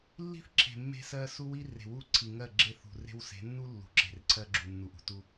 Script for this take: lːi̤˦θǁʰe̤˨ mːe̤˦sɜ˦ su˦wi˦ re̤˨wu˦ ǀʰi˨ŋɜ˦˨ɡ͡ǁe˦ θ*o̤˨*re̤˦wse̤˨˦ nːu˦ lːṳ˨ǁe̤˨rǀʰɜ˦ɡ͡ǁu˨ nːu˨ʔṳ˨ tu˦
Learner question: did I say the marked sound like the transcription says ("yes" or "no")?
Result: no